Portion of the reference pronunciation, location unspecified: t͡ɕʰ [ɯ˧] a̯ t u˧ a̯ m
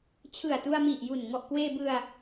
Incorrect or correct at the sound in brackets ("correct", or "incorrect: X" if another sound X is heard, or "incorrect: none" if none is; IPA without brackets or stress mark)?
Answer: incorrect: ɯ˨˩